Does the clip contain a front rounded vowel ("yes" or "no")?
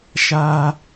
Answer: no